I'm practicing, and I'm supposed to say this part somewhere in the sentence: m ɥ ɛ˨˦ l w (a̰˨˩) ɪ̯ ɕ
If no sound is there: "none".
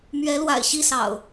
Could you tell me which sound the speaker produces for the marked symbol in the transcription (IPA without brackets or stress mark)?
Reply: a̰˨˩